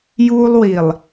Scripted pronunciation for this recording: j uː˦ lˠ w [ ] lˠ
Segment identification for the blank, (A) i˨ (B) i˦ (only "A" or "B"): A